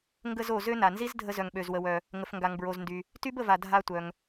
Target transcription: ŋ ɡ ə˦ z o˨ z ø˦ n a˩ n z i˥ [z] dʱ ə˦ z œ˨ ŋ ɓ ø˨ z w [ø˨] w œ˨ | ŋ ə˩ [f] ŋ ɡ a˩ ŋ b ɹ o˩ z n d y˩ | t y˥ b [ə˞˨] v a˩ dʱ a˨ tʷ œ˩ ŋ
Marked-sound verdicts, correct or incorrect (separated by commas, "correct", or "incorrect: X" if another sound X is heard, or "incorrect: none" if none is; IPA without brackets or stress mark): correct, incorrect: ə˨, correct, incorrect: ə˨